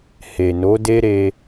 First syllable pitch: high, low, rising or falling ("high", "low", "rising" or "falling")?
low